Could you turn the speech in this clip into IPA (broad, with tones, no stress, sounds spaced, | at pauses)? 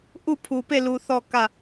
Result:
ʔ u˦˨ pʰ u˨ p e˦˨ l u˨ θ ɔ˦˨ k ä˦˨